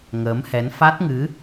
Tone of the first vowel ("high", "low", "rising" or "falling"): rising